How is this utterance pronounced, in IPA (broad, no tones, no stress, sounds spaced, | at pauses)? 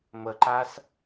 m ə ǃ a s